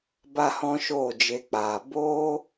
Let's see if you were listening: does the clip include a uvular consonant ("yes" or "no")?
no